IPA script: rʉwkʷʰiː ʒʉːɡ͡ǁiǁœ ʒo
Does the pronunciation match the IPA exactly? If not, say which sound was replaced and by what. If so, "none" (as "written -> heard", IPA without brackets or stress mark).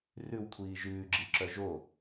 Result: none